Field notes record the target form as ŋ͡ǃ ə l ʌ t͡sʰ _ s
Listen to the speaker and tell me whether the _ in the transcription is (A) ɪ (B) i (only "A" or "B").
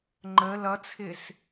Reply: A